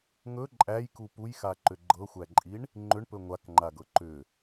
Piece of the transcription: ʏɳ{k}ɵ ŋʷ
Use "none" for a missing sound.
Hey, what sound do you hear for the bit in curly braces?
p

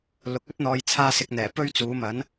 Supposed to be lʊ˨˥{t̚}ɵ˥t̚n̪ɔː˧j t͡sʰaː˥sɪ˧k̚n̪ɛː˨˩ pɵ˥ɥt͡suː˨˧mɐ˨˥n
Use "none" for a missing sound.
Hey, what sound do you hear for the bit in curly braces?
k̚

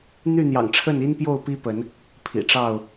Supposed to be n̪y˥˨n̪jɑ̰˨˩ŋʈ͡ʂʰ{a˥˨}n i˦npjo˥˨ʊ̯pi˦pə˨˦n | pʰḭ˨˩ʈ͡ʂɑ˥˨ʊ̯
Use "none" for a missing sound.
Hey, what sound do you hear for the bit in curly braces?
ə˥˨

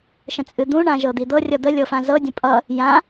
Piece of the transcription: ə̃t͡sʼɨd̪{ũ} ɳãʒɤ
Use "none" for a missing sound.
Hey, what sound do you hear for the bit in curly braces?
ũ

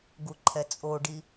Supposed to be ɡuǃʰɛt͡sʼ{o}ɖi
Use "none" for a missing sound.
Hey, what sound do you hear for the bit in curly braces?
o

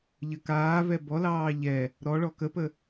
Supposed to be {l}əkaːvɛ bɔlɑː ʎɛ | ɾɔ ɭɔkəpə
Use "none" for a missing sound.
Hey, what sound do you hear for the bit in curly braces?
ʎ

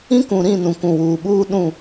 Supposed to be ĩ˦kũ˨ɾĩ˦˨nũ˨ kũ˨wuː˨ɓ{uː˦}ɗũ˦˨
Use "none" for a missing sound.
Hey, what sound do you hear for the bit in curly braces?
uː˦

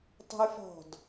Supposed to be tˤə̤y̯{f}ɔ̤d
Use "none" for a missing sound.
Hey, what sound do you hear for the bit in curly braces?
f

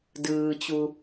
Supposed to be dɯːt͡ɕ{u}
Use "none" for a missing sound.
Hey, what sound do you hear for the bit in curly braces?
u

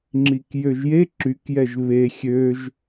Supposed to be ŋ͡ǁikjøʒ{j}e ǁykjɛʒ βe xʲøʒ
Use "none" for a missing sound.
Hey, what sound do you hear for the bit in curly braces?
j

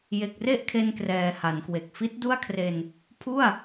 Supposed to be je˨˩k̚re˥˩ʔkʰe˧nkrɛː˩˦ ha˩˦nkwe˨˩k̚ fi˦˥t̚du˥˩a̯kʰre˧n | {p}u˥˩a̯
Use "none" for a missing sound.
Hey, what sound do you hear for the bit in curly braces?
pʰ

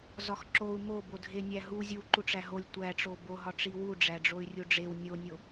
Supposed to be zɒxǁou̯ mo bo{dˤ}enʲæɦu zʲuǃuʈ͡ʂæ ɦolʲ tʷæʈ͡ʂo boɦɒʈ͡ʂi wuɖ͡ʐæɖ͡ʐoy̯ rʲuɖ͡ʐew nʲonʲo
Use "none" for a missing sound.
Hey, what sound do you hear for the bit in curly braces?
dʱ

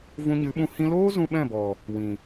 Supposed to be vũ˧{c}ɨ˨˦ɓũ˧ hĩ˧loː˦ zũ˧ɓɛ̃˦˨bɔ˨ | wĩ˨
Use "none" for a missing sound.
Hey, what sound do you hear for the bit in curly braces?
ɲ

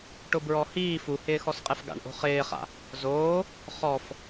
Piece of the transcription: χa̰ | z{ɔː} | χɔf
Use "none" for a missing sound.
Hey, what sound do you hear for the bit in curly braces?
oː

